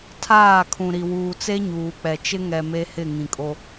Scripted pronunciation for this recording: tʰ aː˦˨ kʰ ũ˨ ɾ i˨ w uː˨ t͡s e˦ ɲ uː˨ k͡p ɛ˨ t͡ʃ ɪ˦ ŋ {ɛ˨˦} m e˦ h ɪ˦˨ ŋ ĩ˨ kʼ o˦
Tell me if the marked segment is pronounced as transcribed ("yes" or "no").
no